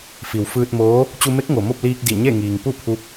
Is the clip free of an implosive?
yes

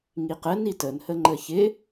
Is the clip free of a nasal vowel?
yes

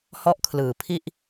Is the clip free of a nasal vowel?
yes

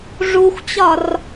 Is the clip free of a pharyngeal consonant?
yes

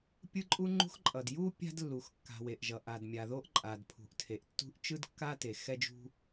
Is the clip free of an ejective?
no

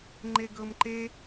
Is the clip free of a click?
no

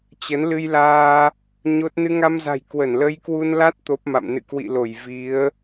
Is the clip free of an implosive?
yes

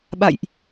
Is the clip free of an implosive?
no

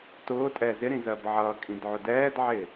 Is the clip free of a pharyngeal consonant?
no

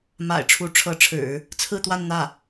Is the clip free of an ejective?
yes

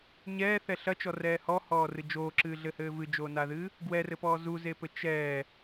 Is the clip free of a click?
no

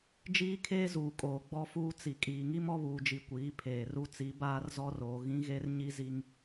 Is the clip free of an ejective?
no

